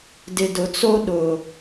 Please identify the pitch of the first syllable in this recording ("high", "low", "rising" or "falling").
low